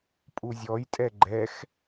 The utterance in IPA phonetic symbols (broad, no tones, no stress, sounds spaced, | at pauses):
pʼ u zʲ ɔ j tʼ ɛ ɡ͡ǃ ɛ x